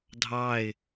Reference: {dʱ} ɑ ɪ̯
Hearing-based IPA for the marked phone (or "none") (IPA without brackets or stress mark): dʱ